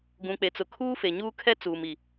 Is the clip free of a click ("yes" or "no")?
yes